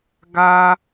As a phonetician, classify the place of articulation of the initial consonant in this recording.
velar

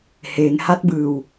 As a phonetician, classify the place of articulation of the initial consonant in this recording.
glottal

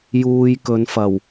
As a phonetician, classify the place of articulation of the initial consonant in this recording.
palatal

